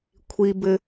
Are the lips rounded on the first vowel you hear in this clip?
no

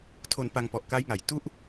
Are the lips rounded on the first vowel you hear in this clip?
yes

